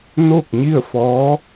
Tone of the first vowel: falling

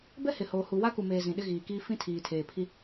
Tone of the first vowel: high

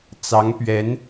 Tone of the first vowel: rising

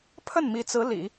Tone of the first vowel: falling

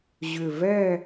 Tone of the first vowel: low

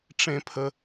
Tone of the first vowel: low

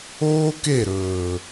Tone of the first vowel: high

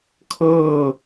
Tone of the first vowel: falling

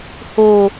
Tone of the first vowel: low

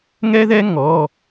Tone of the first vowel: high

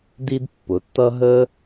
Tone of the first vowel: high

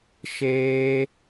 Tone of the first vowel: high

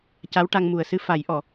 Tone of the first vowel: rising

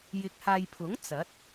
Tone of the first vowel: rising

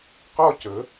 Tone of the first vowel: falling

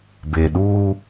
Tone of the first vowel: low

